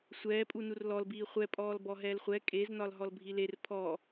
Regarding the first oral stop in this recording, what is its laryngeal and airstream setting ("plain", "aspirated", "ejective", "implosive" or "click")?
ejective